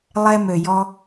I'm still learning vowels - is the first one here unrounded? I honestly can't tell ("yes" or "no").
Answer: yes